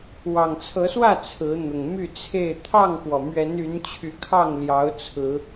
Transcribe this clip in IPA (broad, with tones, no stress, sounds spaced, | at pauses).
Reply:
w ɑ˨˩ ŋ t͡sʰ ɤ˨˦ s w ä˥˨ t͡sʰ ɹ̩˨˦ n̪ ʊ˨˩ ŋ m y˥˨ t͡sʰ e˥˨ ɪ̯ t̪ʰ ɑ˥˨ ŋ x w ɔ˩ m ɥ ɛ˨˦ n y˨˦ n t͡ɕʰ y˨˦ kʰ ɑ˥˨ ŋ l j ɑ˨˦ ʊ̯ t͡sʰ ɹ̩˨˦